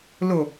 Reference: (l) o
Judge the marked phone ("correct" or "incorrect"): correct